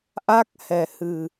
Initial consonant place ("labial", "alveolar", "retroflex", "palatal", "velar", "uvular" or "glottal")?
glottal